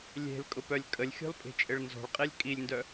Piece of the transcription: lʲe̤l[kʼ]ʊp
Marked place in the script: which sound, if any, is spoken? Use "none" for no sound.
kʼ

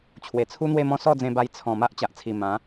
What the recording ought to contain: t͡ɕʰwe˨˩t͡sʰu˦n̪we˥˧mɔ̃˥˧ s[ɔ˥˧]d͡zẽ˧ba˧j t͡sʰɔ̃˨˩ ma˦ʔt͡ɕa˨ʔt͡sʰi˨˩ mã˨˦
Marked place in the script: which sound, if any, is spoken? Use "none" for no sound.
ɔ˥˧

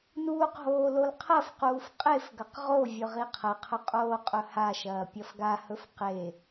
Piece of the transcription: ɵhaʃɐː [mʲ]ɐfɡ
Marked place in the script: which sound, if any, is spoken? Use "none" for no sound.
pʲ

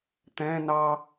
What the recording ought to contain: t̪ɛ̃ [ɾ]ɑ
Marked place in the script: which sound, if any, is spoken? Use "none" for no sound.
n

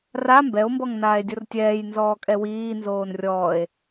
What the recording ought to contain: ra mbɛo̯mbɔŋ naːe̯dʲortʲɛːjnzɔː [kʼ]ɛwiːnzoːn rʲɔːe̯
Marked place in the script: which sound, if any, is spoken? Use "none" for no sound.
kʼ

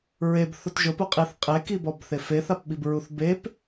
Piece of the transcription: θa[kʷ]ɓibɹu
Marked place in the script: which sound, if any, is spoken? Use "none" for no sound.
p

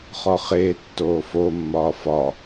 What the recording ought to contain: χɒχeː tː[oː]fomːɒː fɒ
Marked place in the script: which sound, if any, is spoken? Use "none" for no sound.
oː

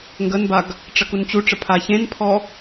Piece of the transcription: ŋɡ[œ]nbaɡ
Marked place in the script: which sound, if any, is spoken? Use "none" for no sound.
ə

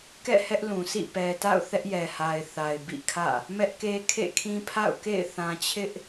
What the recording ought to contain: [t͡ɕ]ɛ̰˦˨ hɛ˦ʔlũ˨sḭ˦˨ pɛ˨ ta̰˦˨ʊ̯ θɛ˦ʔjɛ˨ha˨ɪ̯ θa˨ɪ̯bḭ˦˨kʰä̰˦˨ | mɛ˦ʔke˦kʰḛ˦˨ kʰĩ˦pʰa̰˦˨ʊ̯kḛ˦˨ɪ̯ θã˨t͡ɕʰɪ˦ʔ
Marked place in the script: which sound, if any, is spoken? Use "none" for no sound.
k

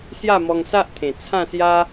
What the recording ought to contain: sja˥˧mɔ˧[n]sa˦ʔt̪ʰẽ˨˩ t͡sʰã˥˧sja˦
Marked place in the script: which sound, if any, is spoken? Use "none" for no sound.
ŋ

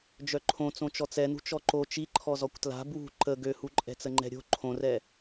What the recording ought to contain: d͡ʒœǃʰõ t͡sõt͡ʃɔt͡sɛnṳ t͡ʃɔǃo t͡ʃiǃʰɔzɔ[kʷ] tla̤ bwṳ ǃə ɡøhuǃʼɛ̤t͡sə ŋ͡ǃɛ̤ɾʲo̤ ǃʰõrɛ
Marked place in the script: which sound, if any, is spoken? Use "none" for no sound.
kʷ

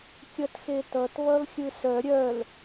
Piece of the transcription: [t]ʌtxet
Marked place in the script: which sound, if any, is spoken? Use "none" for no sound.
kʲ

